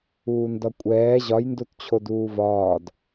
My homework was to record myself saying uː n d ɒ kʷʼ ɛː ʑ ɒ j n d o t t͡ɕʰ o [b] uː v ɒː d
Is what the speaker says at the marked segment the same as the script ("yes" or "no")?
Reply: no